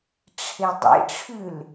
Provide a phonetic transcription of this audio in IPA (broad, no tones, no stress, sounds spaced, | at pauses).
ʈ͡ʂʰ e dˤ ḛ ʈ͡ʂʰ ʉ l